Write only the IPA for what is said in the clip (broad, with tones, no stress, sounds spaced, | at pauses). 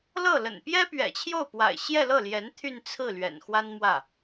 l ɤ˥˩ l ə̰˨˩ n p j ɛ˥ p ɥ ɛ̰˨˩ t͡ɕʰ j o˥˩ ʊ̯ p w a̰˨˩ ɪ̯ ɕ j ɛ˥˧ l ɤ˥˩ l j ɛ˧˥ n t̪ʰ y˥˧ n t͡sʰ ɹ̩˥˩ l ɥ ɛ̰˨˩ n x w a˥ n m w ä˥˩